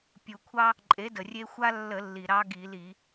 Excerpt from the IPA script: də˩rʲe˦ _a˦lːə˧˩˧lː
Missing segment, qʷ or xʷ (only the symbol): xʷ